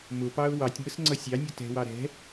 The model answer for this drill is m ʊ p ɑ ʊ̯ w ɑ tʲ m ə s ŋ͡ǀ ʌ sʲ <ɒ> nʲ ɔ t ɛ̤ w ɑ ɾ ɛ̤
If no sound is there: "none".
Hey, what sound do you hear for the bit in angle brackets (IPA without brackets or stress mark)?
ɑ